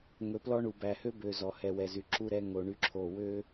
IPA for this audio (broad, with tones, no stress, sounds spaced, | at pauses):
ŋ ɵ˨ p l ɔ˦ ɳ u˨ b æ˨ h ø˦ b ø˨ z ɔ˨ h ɛ˨ w ɛ˨ z y˨ ǁ u˦ ɾ ɛ˦ ŋ o˨ ɳ y˦ ǁʰ o˦˨ w ø˦